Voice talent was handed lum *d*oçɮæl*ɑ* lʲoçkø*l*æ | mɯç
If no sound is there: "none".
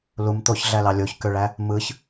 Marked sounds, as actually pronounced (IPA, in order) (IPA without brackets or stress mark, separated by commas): t̪, ɑ, ɭ